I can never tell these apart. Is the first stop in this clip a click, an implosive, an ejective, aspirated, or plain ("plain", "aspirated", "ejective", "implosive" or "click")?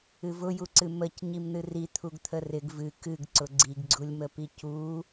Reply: click